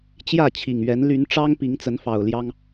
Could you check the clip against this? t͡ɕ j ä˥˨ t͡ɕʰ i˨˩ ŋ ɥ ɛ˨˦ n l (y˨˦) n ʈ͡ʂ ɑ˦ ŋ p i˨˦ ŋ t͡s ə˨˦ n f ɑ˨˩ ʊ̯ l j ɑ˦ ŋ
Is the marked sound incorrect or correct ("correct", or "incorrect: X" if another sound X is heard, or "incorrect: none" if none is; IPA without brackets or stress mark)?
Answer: correct